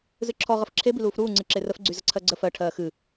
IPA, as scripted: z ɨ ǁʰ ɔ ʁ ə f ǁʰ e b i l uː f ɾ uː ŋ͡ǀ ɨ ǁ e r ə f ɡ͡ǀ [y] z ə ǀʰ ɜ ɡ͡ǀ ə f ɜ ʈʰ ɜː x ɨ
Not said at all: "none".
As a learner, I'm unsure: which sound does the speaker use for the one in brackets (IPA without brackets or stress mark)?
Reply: y